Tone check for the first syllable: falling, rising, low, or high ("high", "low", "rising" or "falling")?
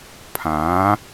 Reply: rising